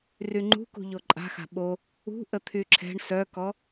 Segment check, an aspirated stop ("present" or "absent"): present